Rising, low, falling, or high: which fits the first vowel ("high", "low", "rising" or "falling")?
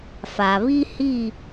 low